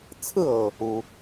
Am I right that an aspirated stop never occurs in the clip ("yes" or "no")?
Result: no